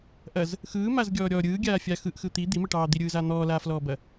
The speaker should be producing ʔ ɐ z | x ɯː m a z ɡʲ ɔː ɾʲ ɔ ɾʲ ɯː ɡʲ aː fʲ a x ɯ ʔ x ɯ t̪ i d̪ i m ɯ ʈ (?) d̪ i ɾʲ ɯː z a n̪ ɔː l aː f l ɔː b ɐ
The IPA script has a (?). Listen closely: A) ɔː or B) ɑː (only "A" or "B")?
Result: B